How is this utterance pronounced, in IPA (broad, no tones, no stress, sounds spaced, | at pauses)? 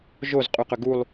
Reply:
ʒ o z qʼ y q ʏ ɡ u lˠ